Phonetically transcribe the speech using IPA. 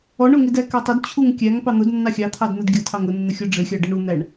ɔɳʊŋɪdæ kɛtˤəd t͡ɕʰuŋkʲæŋ pɑn̪ʊd nːɑxʲɑt̪ʰɑdn̪əd ɡʲʌtʰɑŋ ʊnːə xʲɔɖ͡ʐɪxʲɑɖʌɳ un̪æɳ

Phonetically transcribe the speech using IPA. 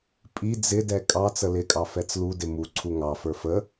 pʼi d͡zɪdɛ kʼɑ t͡səlɪkʼɑ fɛt͡sludɪ muǀʰu ŋɑfə˞ fə

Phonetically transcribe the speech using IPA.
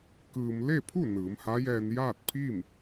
kɯː˧m le˥˨pʰu˥˨ nɯː˩˧mha˧˥jɛː˧n jaː˥˨t̚pʰiː˥˨m

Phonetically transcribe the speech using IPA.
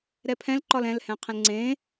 ɾɛpʰɛ̃lǃɒl ɛ̃lhɛ̃qʰə̃l ŋ͡ǀẽ

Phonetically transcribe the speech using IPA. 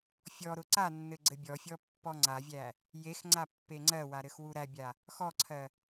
fʲɔɾʊ ǀanːɘ ɡ͡ǀɘbʲɔfʲɔ pːɔŋ͡ǀavʲæ | jexŋ͡ǀa pːeŋ͡ǀɜwa ɾɘxwuɾæbʲa | xɔǀʰɜ

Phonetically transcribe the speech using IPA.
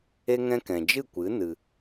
e˦ŋɛ̃˦ kɛ̃˨d͡ʒɨ˦˨kʷɨ˨˦ nɨ˧

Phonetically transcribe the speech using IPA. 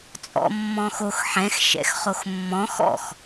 t͡sʼɔ̰mːɔ̃xox ħɛ̃x ʃɛ̰xχoxmːɔ̃ xɔ̰x

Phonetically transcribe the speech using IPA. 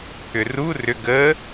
t̪ʰʏru rʏ ɡə

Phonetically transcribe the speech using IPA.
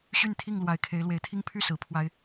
ɕy˥˨nt̪ʰi˥˨ŋ lwa˨˩ɪ̯kʰe˨˦ɪ̯lwe˨˦ɪ̯t̪ʰi˦ŋ pʰy˥˨ sɹ̩˨˦pʰwa˦ɪ̯

